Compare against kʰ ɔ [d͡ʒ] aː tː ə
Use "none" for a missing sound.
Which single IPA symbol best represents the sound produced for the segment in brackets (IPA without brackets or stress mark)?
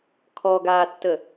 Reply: ɡ